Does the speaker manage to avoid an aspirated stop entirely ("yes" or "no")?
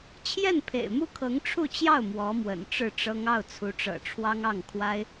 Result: no